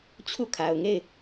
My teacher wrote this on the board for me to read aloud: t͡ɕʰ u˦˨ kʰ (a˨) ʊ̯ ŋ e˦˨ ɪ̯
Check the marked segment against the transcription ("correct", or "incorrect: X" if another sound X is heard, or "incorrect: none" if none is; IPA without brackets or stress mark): correct